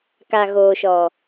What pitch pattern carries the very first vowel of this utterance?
low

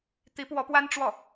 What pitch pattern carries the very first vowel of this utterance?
rising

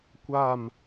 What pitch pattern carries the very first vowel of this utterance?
falling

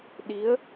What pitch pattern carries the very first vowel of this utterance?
rising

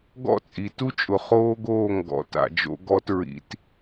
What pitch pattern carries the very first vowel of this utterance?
falling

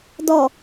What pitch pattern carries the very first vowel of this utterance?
low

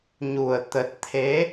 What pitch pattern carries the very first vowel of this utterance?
low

